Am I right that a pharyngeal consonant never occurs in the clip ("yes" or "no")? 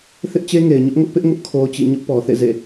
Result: yes